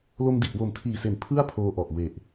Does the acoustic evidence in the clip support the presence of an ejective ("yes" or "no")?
no